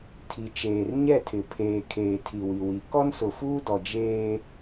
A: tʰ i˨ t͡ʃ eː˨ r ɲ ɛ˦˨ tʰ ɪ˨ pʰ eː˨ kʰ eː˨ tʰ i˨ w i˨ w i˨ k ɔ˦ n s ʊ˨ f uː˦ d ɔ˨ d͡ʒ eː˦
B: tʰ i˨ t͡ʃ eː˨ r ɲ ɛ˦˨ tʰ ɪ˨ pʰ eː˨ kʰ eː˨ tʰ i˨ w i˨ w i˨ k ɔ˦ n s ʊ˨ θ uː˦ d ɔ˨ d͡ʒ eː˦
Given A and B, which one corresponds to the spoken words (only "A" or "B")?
A